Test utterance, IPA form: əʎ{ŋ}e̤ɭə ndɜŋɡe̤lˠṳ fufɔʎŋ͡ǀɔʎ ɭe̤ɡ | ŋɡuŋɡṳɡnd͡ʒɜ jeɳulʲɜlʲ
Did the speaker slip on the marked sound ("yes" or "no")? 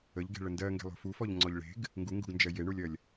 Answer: yes